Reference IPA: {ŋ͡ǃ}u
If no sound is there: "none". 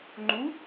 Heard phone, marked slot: ŋ͡ǃ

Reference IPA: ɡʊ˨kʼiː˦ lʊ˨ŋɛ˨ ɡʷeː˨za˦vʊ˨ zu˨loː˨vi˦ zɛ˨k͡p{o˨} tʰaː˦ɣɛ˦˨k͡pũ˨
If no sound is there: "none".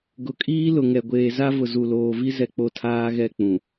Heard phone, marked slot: o˨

